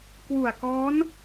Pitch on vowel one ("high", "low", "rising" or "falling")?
low